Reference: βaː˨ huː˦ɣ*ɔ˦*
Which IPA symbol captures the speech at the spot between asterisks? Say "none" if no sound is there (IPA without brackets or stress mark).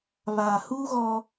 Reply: ɔ˦